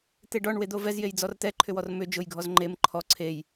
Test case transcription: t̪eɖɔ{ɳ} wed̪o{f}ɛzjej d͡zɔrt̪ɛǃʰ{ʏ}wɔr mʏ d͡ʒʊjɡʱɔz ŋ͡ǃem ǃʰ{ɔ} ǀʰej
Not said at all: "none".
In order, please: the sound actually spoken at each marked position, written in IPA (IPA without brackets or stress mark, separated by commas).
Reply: ɳ, v, ʏ, ɔ